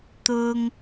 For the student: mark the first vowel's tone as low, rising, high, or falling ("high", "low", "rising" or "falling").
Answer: high